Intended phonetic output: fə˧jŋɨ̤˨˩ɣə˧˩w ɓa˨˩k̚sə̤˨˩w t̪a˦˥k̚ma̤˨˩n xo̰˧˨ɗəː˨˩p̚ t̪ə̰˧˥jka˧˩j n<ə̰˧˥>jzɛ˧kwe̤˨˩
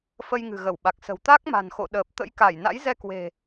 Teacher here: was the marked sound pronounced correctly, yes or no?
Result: no